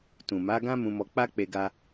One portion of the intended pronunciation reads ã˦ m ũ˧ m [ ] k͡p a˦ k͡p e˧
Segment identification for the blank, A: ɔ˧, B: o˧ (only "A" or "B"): A